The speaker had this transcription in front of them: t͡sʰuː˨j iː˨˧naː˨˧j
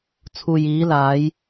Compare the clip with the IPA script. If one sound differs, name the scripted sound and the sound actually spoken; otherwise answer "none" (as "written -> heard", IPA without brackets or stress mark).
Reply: n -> l